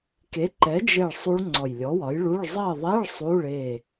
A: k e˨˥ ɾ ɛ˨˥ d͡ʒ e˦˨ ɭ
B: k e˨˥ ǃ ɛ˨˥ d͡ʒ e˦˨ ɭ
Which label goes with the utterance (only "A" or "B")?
B